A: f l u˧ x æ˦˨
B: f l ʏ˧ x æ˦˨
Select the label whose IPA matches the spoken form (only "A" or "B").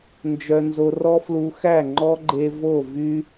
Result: A